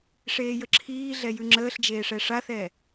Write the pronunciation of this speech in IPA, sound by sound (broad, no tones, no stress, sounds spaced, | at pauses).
ʂ eː j ə ǁʰ iː ɮ ɛ j ʉ ŋ͡ǁ əː ɬ d͡ʒ eː ʂ ɛ ʂ a θ ɛ